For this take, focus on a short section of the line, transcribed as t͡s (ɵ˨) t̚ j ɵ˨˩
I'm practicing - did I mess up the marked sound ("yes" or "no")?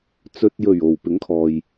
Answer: no